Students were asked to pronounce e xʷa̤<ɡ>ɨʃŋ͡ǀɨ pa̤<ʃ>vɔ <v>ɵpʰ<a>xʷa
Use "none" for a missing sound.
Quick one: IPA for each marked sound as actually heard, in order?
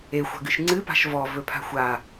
ɡ, ʃ, v, a̤

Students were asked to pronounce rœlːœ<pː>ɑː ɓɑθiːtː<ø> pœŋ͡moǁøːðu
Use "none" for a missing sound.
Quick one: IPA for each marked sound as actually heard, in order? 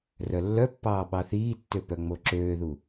pː, ø

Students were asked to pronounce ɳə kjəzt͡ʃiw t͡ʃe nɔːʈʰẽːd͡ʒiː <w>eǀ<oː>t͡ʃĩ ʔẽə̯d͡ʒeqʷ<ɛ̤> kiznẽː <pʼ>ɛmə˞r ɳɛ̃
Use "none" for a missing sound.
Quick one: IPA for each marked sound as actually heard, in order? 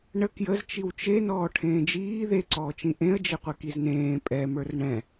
ð, ɔː, ɛ, pʼ

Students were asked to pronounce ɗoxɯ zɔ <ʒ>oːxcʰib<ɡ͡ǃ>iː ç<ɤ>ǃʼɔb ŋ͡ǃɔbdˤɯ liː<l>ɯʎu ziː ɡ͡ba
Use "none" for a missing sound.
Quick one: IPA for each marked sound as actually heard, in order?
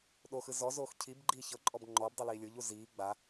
z, ɡ͡ǃ, ɤ, lʲ

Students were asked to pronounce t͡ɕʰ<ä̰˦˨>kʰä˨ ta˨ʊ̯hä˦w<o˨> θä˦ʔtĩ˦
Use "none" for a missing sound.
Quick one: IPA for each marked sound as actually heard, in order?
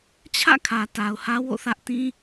ä̰˦˨, o̰˦˨

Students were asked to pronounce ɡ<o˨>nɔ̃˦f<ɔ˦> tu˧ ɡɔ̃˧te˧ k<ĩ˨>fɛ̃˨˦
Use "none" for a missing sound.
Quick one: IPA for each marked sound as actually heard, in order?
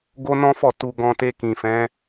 o˦, ɔ˦˨, ĩ˨

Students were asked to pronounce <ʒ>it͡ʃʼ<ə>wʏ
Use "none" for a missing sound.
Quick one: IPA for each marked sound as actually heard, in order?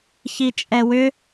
ç, ɛ

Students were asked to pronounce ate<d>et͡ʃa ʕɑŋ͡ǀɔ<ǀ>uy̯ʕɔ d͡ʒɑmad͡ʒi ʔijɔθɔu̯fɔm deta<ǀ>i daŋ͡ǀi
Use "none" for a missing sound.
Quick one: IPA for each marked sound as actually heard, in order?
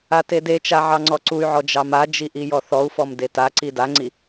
d, ǀ, ǀ

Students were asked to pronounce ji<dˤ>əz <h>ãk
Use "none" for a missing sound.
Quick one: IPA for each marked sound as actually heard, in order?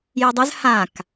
dˤ, h

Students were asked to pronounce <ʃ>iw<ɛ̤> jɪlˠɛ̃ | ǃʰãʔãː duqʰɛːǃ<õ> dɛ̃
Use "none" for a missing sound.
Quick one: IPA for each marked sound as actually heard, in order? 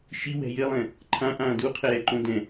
ʃ, ɛ̤, õ

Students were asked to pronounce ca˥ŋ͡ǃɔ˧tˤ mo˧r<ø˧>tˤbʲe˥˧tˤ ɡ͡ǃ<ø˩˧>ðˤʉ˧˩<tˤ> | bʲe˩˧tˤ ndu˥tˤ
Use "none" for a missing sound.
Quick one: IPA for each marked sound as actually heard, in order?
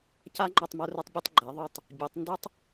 ø˧, ɛ˩˧, tˤ

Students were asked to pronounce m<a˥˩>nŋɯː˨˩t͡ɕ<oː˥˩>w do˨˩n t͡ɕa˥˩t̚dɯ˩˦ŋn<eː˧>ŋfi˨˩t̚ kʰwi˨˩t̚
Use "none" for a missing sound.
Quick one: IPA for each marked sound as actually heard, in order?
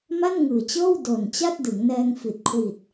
a˥˩, ɤː˥˩, ɛː˧

